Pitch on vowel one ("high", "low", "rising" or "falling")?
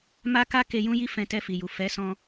high